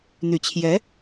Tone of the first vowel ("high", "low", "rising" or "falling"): low